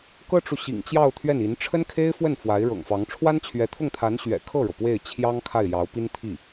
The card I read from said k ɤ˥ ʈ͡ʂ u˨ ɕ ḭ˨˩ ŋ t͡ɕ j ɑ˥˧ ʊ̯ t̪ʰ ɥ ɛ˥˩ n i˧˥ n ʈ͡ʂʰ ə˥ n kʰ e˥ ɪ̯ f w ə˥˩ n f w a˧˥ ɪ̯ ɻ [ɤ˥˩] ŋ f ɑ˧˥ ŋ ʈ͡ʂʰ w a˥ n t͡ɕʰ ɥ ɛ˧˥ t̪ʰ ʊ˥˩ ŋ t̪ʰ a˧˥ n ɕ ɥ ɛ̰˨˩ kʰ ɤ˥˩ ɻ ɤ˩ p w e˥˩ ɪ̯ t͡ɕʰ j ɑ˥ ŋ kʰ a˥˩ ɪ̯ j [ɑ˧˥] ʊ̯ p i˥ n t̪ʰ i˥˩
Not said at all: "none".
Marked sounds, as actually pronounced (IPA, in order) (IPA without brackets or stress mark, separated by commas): ɤ̰˨˩, ɑ˧˥